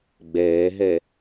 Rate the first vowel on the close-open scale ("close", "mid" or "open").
mid